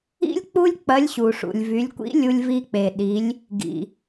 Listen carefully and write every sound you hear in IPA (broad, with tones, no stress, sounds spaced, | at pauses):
ḭ˥ lʲ k͡p u˥ lʲ k͡p ɐ˧˥ lʲ ɕ u˩ ʂ ṵ˩ lʲ v y˩˧ lʲ kʷ ḭ˧˥ lʲ u˧ lʲ v i˧ k͡p e˩ ɗ i˩˧ lʲ | ɡ ḭ˩